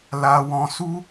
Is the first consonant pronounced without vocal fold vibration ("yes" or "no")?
no